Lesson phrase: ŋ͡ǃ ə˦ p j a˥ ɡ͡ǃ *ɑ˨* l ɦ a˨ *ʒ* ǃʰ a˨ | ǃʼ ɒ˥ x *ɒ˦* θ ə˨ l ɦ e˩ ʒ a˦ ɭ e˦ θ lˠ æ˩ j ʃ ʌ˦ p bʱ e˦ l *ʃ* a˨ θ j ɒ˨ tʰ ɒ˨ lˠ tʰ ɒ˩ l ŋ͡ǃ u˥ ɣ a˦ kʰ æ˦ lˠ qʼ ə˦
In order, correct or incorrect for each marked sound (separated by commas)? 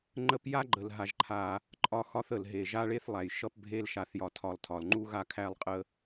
incorrect, correct, incorrect, correct